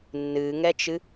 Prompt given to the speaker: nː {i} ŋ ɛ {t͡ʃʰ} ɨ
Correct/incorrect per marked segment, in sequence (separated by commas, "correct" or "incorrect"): incorrect, incorrect